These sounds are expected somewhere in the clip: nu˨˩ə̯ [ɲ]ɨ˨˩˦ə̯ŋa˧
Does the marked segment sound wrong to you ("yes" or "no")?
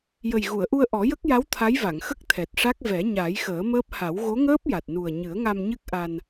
no